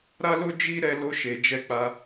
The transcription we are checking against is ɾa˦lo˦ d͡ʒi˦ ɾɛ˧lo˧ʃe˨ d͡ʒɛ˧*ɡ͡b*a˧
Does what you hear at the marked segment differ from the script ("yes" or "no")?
yes